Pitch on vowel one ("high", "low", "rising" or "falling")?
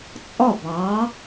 falling